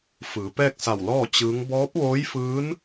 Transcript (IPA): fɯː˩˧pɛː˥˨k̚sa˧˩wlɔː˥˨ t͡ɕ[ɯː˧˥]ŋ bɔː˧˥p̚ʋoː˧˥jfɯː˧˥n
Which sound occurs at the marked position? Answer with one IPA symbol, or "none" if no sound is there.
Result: ɯː˧˥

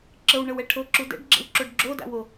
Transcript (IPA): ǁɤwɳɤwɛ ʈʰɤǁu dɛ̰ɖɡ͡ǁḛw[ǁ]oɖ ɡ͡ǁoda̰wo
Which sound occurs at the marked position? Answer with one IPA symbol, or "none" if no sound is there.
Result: ǁ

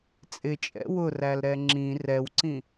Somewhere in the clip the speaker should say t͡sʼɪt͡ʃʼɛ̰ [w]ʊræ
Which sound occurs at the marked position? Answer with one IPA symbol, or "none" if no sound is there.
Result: w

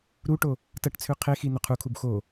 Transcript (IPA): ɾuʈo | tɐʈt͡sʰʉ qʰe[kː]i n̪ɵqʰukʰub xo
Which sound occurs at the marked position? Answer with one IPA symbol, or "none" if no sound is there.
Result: x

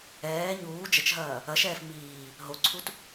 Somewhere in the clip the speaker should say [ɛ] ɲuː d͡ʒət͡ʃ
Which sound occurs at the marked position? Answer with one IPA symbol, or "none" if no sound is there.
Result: ɛː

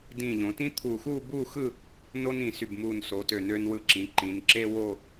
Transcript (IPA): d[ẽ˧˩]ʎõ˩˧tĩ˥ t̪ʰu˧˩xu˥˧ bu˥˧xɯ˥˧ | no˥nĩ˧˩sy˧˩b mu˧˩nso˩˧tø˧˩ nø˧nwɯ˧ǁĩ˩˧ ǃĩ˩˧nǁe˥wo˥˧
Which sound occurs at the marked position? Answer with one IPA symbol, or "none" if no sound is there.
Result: ĩ˧˩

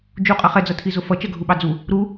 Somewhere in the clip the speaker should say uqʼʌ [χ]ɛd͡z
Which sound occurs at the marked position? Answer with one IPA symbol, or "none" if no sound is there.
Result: χ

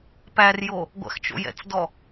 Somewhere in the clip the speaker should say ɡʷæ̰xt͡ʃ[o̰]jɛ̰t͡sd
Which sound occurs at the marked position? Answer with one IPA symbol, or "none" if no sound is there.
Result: o̰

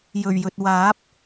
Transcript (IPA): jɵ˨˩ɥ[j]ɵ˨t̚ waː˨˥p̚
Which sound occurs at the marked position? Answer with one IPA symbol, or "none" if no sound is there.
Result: j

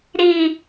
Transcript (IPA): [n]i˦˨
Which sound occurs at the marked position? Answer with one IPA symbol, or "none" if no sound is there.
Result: ɾ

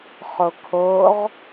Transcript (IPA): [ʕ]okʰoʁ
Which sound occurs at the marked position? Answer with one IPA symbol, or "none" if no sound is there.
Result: χ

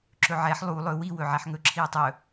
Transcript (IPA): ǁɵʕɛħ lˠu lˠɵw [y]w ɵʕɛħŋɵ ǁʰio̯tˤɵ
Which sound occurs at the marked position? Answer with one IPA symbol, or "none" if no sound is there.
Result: i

